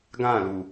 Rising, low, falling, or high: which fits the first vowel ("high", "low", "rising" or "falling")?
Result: falling